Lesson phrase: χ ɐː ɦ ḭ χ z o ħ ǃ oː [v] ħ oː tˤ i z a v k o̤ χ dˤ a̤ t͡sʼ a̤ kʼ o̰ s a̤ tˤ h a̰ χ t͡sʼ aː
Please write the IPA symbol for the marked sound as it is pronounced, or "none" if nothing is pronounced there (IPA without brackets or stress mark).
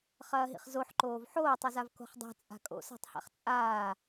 v